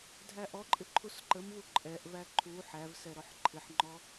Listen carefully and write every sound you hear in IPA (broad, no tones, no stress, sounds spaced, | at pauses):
dʱ æ ʔ ɔ ǃʼ ɪ ǃʰ u s ǃ ə m v u ǃʼ ɛ ʔ v æ ǃʰ u ħ æ v s ɛ ɾ ɔ ħ ǃʰ ɪ ħ ŋ͡ǃ ɔ